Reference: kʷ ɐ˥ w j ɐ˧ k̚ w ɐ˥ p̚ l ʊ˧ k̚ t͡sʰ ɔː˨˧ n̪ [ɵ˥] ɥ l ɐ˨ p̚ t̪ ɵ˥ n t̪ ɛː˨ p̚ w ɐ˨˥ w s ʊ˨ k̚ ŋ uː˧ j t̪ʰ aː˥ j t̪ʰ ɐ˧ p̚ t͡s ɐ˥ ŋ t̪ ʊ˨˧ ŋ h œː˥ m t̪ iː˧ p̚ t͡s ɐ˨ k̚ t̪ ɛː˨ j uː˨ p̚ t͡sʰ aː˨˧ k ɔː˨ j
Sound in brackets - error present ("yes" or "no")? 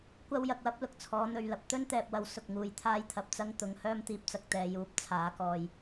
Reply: yes